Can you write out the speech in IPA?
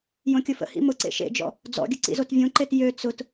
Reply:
jõkʲʊfə̰hḭ mʊǀḛ ʃḛd͡ʒɔ̰ | d͡zɔ̰ɡʲə ǀḭzotvʲõǃet jø t͡sʊt

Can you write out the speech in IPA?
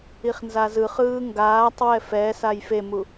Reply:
iχnzazɯ χɯːŋɡaːtˤ wɛfɛ sajfemu

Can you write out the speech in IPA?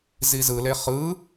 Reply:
zizɯle χɯ

